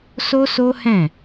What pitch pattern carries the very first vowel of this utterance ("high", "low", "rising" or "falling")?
high